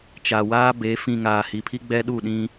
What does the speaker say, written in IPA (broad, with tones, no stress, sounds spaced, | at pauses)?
t͡ʃ a˨ w aː˦ b e˨˦ f ĩ˨ ŋ aː˨ h i˨ pʰ i˦ ɡ͡b ɛ˦ ɗ u˦˨ ɗ ĩ˦